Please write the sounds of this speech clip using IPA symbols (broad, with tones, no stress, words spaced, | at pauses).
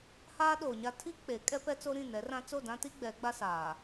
haː˦ ɗoː˨ɲa˦ tʰi˦ k͡pe˨˦ kʼɛ˦pɛ˦t͡so˦ ɾĩ˦˨nɛ˨˦rã˦ t͡so˦˨dã˦ti˦ ɡ͡bɛ˨˦ɡ͡ba˦saː˨